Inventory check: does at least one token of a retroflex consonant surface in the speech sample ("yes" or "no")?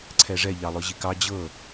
yes